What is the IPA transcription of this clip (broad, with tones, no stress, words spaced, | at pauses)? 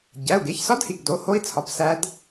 ɟæ˩˧˩u̯ɡe˩˧˩çsɒ˦˥dhi˩˧˩ɡ do˩˧˩ho˦˥i̯t͡sʰɒ˩˧˩p sæ˦˥d